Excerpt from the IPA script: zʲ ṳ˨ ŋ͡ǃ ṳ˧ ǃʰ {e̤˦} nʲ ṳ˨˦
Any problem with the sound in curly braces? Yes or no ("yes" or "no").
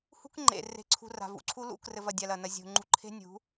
no